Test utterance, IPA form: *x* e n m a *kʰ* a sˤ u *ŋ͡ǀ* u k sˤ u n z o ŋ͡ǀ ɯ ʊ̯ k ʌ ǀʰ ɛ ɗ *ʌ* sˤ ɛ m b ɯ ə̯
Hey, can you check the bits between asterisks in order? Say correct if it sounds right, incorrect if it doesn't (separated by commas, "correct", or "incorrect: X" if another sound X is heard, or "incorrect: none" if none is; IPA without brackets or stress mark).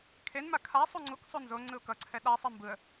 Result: incorrect: kʰ, correct, correct, incorrect: a